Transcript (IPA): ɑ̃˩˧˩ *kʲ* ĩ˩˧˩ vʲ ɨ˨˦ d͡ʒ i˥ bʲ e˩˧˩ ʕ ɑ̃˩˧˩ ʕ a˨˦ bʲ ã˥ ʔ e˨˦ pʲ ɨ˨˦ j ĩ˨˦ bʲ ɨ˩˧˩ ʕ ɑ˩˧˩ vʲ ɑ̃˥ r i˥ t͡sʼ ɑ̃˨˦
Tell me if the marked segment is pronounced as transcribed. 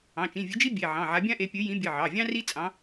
no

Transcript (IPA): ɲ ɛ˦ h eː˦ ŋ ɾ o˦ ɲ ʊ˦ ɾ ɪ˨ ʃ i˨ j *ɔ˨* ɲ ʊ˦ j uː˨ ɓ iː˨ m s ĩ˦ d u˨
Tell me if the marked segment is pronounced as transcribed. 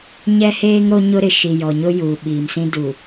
yes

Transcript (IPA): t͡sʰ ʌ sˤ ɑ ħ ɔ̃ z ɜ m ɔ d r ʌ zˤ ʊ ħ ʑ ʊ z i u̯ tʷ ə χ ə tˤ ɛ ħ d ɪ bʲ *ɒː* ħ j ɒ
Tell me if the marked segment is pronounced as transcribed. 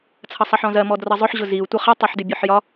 no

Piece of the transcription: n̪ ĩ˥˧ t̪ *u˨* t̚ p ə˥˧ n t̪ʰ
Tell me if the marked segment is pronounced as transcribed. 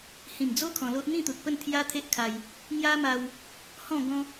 yes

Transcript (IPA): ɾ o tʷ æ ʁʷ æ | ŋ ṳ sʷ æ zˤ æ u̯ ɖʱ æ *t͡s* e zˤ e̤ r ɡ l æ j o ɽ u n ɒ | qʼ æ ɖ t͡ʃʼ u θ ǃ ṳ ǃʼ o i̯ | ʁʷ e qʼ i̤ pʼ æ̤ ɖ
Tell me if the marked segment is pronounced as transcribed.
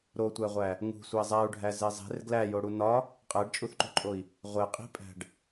no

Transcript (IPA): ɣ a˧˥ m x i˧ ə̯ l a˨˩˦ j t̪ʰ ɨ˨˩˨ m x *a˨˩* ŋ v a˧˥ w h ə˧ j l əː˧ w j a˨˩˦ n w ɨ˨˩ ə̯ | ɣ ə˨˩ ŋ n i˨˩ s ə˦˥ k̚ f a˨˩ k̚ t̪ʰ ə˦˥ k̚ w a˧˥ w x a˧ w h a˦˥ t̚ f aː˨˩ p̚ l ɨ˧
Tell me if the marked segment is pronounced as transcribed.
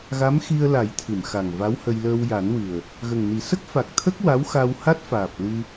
yes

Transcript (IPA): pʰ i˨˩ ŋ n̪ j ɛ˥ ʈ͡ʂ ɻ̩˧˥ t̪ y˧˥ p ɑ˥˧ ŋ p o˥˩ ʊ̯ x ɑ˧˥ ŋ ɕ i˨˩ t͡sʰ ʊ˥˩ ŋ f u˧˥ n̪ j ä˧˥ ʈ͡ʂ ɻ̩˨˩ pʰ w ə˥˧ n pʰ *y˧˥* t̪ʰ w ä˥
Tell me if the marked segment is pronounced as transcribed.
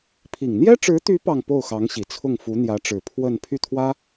no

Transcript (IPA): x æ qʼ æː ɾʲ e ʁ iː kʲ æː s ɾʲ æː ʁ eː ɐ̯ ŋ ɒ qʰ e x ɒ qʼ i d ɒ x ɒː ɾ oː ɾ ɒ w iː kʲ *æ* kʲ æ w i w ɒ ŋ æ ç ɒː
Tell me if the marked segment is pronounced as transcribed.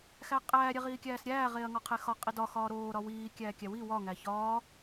no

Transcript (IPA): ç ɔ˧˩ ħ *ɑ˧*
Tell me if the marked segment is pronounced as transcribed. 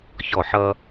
no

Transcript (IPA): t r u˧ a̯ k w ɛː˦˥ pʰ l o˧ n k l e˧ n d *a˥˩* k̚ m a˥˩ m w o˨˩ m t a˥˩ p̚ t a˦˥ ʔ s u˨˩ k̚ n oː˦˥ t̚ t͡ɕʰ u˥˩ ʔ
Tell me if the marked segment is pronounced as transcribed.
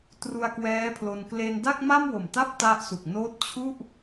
yes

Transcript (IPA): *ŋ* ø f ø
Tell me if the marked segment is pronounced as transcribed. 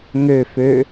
yes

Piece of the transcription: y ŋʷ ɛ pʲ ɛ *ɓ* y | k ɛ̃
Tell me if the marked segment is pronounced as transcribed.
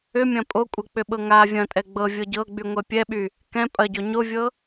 yes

